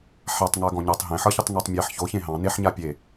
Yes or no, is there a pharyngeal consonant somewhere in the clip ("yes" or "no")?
yes